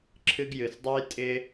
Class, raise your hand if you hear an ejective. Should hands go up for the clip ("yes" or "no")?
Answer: yes